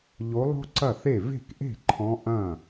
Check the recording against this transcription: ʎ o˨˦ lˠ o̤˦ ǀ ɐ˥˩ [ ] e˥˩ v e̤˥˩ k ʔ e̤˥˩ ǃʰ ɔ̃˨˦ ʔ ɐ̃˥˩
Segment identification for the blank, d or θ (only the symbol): θ